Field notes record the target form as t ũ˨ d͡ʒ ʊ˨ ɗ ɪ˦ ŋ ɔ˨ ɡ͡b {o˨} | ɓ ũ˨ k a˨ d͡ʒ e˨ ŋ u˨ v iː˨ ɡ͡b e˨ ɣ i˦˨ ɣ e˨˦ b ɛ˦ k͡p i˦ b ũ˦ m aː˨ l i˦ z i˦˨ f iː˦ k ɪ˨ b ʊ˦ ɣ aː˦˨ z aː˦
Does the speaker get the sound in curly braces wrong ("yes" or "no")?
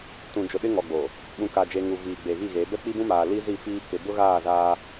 no